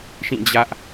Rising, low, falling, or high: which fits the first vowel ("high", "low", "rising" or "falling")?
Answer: falling